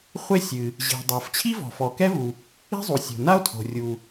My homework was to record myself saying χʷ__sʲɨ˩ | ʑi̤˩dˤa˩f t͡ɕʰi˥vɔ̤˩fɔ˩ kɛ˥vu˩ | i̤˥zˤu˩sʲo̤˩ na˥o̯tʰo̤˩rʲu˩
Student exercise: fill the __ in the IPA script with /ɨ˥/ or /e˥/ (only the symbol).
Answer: e˥